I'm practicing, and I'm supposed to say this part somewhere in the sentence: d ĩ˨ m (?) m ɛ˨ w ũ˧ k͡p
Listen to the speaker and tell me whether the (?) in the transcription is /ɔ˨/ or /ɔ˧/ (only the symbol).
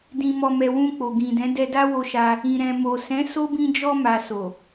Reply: ɔ˨